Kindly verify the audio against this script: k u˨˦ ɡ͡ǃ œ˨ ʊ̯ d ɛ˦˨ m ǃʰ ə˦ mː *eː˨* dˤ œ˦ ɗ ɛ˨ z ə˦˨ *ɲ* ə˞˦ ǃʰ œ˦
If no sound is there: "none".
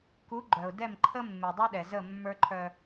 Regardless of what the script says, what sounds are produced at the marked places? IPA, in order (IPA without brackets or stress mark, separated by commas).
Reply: e˨, mː